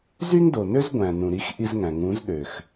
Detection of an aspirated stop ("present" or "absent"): absent